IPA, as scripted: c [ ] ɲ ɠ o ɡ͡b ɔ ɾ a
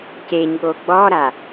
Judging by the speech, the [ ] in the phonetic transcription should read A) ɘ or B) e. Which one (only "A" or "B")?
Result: B